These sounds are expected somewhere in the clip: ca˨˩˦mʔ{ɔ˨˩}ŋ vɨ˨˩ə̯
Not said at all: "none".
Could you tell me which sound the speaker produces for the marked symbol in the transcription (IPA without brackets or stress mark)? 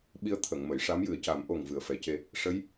o˨˩